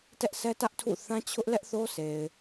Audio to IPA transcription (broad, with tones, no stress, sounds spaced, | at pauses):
t ɛ˦ ʔ sʰ ɛ˦ t ä˦ ʔ tʰ ṵ˦˨ θ ã˦ t͡ɕʰ ʊ˦ ʔ l ɛ˦ ʔ θ o˦ sʰ e˨ ɪ̯